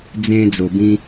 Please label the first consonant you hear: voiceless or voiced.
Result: voiced